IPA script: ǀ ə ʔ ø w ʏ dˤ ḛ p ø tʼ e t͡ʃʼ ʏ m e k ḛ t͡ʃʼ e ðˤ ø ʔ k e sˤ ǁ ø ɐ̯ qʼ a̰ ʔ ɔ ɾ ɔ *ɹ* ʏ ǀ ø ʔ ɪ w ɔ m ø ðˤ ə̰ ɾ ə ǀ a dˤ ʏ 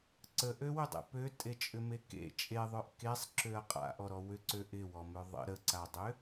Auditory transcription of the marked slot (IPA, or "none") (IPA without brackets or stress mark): w